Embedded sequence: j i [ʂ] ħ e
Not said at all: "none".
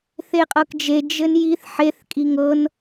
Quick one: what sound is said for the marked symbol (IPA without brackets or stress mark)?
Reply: θ